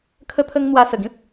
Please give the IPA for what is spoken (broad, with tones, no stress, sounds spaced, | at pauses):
kʰ ə˦ t̪ʰ ə˦ ŋ n̪ w a˧ s ə˨˩ ɡ ĩ˦ p̚